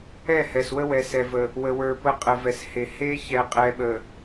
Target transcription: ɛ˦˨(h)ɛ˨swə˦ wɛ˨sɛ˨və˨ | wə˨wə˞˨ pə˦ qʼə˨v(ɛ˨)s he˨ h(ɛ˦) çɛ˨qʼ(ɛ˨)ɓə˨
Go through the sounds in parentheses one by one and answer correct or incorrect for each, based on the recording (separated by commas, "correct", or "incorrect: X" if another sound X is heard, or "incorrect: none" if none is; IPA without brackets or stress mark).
correct, correct, incorrect: e˦, correct